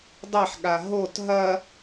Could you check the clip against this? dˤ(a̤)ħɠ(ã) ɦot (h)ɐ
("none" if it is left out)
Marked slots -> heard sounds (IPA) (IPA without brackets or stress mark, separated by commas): a, a, ɦ